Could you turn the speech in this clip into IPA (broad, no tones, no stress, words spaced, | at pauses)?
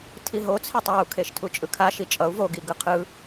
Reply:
tʰiɦo t͡sʰetˤɛu̯kʰeʃ tʰut͡ʃʼɯkʰaʃi t͡ʃʼʌu̯ voɡiɡɯ qʰɯ